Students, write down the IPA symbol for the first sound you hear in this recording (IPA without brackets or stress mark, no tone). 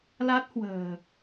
l